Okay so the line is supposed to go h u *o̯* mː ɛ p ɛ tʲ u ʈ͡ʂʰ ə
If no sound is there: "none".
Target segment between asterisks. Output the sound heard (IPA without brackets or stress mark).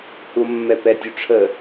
o̯